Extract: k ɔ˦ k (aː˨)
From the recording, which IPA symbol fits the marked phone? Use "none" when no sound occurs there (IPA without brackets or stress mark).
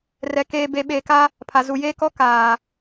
aː˨